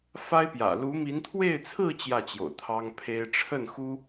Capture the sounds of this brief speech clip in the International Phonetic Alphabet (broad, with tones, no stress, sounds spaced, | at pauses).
f a˥ ɪ̯ p j ä̰˨˩ l u˧˥ m i˧˥ n t̪ʰ w e˥˧ ɪ̯ t͡sʰ ɹ̩˥˧ t͡ɕ j ä˥˩ t͡ɕ j o̰˨˩ ʊ̯ t̪ʰ ɑ˥ ŋ pʰ e˥ ɪ̯ ʈ͡ʂʰ ə˥˩ n x u˥